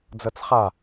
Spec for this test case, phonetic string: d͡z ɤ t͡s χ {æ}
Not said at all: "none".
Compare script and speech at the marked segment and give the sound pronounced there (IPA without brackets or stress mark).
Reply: a